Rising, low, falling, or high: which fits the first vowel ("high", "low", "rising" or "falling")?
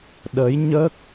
rising